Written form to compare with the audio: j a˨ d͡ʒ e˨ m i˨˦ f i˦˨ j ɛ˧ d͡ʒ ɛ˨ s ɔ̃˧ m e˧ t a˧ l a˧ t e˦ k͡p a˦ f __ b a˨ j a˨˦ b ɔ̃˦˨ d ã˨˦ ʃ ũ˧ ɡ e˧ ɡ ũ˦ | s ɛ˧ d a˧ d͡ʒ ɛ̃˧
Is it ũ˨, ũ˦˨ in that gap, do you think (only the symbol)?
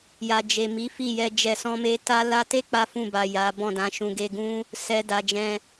ũ˦˨